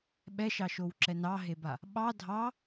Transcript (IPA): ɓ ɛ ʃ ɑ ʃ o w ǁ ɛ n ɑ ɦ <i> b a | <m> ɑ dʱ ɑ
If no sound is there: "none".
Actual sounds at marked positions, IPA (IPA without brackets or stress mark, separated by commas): e, ɓ